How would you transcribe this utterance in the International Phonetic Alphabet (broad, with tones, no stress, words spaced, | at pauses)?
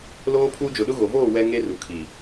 loː˦pʰuː˦ d͡ʒʊ˨ɗʊ˦ɣo˨ voː˦˨ wɛ˦ŋe˦ru˨kʰi˨